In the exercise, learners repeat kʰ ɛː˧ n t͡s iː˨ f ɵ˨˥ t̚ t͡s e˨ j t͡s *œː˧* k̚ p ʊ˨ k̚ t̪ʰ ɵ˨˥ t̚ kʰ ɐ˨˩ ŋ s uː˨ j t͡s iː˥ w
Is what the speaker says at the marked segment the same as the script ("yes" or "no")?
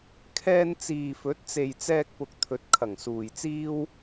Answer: no